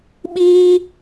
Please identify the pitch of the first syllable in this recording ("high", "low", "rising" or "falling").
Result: high